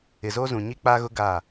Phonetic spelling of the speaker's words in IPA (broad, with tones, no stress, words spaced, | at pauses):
ɪ˨zoː˦zũ˨ɲi˦ k͡pa˦ɣʊ˦ ɡa˦˨